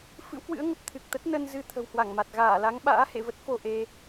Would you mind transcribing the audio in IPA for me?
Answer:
f ɨ̰˧˥ w k w ɨ̰˧˥ ə̯ ŋ ə˨˩ p̚ t̪ʰ ɨ˨˩ k̚ t̪ ə˦˥ t̚ n ə˧ n z ɨ˧ t̪ʰ ə̤˨˩ w h w a˧˩ ŋ m a˨˩ t̚ ɣ aː˧˩ l a˨˦ ŋ ɓ a̰ː˧˥ h ḛ˧˨ v ə˦˥ t̚ f o˧ ʔ e˧

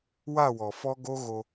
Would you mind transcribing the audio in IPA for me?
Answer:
w a˦˨ w ɔ˨ f ɔ˦ ɡ o˦ ɣ o˦

